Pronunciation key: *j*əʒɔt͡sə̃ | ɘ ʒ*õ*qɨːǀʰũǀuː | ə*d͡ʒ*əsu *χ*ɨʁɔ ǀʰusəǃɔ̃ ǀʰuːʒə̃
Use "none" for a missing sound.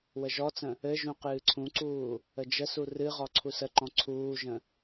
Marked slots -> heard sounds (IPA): w, ũ, d͡ʒ, r

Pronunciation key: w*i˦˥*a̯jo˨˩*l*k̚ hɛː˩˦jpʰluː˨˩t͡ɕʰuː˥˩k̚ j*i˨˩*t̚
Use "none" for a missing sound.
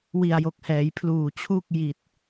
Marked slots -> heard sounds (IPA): i˨˩, none, i˨˩

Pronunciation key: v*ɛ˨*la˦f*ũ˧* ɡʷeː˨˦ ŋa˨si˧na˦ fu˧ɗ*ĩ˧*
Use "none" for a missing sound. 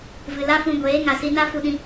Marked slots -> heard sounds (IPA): ɨ˨, ũ˧, ĩ˧

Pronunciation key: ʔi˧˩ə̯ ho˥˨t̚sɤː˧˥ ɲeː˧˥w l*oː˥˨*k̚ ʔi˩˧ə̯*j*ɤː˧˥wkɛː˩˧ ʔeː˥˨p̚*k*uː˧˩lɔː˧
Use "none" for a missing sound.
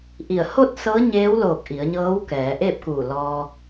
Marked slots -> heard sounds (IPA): oː˧˩, ɲ, k

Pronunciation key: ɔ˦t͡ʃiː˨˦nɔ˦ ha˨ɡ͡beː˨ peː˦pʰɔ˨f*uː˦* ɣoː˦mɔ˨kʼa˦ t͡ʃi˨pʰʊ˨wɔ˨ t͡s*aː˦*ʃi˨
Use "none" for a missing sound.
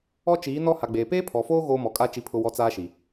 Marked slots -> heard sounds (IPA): oː˦, aː˦

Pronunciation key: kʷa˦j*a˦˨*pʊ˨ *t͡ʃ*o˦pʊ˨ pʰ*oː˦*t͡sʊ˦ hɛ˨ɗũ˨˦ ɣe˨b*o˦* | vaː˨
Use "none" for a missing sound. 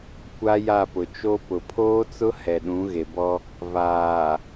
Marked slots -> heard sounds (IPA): a˦˨, t͡ʃ, oː˦, ɔ˦

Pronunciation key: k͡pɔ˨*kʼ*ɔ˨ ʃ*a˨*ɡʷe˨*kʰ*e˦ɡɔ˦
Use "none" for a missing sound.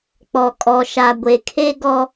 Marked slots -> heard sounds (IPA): kʼ, a˨, kʰ

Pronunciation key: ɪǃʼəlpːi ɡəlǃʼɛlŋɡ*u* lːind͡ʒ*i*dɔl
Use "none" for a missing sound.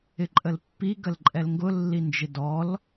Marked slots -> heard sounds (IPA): ʊ, ɪ

